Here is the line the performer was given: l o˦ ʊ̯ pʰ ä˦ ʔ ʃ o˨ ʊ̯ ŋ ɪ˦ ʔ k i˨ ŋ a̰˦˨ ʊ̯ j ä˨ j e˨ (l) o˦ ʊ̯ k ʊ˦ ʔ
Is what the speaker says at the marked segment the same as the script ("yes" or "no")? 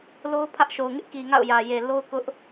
yes